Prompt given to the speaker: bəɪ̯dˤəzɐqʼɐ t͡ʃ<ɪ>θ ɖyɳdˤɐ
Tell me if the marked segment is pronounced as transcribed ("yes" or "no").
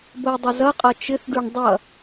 yes